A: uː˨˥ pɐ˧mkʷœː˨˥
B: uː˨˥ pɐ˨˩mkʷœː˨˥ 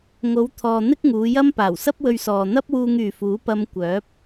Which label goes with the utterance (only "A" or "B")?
A